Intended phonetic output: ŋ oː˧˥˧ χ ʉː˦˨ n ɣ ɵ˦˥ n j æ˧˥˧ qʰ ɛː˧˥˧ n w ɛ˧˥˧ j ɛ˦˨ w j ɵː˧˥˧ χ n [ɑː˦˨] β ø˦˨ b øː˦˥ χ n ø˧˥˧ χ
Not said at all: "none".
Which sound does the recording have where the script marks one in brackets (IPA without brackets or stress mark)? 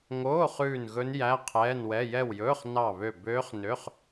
ɑ˦˨